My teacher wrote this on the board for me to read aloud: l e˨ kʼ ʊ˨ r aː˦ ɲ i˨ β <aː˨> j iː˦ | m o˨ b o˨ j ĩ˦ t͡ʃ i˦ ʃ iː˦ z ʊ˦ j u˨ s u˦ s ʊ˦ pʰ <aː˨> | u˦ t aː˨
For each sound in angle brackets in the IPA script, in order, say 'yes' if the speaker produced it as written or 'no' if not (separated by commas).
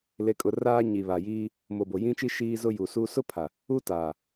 no, no